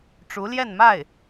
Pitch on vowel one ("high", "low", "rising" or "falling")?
rising